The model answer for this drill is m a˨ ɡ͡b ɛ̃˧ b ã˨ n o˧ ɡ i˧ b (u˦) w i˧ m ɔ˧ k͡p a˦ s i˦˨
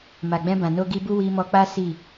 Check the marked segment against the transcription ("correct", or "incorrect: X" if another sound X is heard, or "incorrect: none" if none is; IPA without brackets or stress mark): correct